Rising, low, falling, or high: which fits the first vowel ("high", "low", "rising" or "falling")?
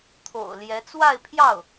low